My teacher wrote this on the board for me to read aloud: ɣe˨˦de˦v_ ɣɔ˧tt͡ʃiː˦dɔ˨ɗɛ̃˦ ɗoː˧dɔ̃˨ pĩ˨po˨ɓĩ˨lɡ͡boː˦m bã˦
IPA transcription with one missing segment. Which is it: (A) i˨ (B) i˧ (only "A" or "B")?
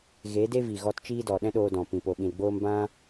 A